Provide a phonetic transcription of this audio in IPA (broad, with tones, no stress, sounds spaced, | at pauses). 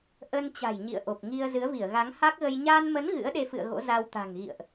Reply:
ʔ ə˧ n t͡ɕ a̤˨˩ j ɲ ḭ˧˨ ə̯ ʔ o˨˩ p̚ ŋ i˧ ə̯ z ɨ˨˦ ə̯ v i˧˩ ə̯ ɣ a˨˦ ŋ h a˦˥ k̚ ɣ ə˧ j ɲ a˧ n m ə˨˦ n ɣ ɨ̰˧˥ ə̯ ɗ e˧ f ɨ̰˧˨ ə̯ ɣ o̰˧˥ z a˧ w t̪ a̤˨˩ ŋ ɣ ḭ˧˨ ə̯ ʔ